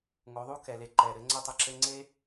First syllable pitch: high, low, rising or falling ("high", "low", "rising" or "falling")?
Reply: rising